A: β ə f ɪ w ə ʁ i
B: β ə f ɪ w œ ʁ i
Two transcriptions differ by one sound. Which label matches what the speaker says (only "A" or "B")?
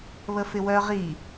B